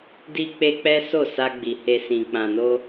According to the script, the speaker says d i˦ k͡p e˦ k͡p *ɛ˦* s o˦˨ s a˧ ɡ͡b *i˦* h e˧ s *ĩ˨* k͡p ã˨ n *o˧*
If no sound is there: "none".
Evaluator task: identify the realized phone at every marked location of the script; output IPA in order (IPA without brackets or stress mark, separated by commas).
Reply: ɛ˦, i˨, ĩ˨, o˧